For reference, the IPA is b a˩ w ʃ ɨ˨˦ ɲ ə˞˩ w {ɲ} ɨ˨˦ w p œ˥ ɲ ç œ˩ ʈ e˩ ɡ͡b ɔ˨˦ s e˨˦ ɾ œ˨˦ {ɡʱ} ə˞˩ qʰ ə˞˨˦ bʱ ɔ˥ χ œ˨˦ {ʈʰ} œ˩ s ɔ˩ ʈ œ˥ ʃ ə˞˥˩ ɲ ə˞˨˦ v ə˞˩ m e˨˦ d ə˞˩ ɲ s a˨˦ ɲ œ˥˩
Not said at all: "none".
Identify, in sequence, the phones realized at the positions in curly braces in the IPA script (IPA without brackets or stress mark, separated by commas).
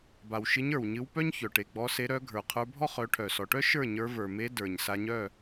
ɲ, ɡʱ, ʈʰ